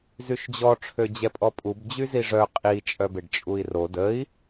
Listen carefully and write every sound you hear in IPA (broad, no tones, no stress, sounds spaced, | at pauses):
z y ʃ d͡ʑ ɔ ʈ͡ʂʰ ø d͡ʑ ɛ pʼ ɔ pʼ u b d͡ʑ y z i ʐ œ qʼ i t͡ʃʼ œ b e ɖ t͡ʃʼ u i̯ r o d ə i̯